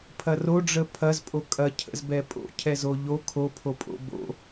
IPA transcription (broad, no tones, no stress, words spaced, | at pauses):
pʰɐroɖ͡ʐə pʰɐzpʼo kʼɐcʰə̰z bɛpʼo̰ cʰɛzoʎo kʰopʰopʼo̰ bo̰